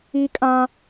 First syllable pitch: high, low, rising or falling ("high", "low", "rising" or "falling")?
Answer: high